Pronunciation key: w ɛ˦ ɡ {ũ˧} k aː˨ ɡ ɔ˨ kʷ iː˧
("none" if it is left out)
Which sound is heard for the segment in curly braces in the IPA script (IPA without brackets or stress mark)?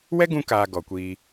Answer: ũ˧